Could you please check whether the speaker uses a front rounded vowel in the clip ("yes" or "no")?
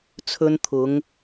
no